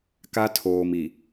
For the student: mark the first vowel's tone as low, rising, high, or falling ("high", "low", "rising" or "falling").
high